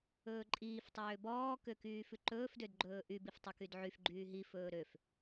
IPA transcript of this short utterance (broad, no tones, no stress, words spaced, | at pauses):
ɵːǃʼiːf tˤøːbɔː køkyːfʉǃɵːf dødɡ͡ǃɵːʔy biftˤykydʕyf ɡ͡ǃyːɦi fɵːɾøf